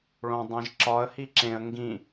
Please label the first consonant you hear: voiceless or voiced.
voiced